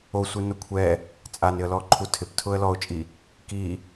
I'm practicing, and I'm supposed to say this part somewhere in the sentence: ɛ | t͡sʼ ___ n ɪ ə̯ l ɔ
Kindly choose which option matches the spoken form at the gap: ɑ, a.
a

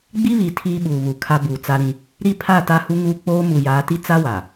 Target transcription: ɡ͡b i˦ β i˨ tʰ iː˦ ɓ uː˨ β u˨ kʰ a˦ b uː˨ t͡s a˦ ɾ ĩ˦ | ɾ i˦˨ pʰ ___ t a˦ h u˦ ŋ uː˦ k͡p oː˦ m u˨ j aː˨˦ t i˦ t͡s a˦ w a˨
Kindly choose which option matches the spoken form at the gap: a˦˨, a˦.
a˦˨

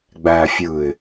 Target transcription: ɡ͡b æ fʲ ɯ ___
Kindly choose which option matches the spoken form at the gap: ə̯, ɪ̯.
ɪ̯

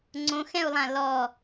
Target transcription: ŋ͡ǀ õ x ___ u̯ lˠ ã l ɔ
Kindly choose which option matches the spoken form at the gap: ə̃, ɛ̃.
ɛ̃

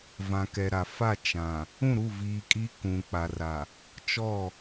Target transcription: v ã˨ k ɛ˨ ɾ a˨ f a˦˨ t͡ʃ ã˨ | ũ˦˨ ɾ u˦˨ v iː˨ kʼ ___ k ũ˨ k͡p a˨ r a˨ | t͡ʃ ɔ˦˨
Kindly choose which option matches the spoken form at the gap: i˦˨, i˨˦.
i˨˦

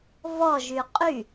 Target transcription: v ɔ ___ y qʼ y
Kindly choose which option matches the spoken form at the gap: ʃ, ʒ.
ʒ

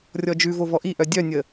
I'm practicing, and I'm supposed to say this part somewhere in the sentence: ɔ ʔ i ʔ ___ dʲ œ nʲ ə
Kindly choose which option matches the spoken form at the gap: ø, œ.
œ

